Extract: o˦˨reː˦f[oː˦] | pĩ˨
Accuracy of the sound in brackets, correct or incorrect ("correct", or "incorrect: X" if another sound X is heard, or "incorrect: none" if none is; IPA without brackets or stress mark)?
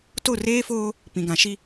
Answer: correct